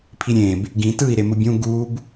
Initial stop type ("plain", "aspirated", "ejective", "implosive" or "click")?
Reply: aspirated